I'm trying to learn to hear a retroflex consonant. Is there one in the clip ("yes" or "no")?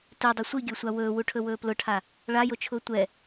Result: yes